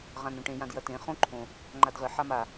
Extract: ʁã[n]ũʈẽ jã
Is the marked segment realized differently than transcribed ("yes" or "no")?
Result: no